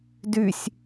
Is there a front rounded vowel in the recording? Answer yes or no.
yes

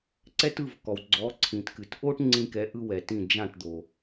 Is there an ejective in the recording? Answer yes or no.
no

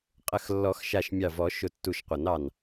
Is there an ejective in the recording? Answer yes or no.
yes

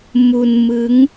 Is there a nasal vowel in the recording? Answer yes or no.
no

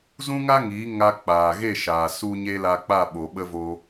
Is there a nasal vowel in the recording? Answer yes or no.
yes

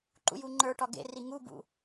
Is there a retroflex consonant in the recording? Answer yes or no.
yes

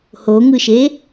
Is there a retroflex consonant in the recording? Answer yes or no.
no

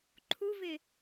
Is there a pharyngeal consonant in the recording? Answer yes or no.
no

